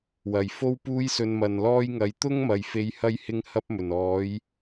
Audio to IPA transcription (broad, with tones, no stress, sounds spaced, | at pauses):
w ɐ˨˩ j f o˥ w p uː˥ j s ɵ˧ n m ɐ˨ n l ɔː˥ j ŋ ɐ˨˧ j t̪ ʊ˥ ŋ m ɐ˨ j f e˧ j h ɐ˥ j h ɪ˥ ŋ h ɐ˥ p̚ m ɵ˨˩ n ɔː˨˥ j